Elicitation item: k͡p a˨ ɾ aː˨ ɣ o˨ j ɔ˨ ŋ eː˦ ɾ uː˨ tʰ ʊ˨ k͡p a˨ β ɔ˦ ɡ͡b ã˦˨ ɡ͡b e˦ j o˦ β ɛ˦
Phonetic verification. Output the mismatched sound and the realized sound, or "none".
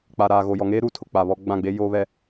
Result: none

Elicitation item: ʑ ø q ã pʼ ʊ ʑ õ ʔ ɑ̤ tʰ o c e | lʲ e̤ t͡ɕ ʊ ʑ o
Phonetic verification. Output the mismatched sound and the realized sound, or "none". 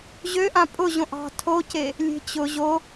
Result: q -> ʔ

